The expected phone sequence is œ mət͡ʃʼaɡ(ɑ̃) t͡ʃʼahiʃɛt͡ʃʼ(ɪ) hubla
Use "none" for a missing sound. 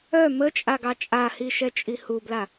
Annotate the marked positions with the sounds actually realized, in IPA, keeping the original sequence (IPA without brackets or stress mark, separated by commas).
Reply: ɑ, i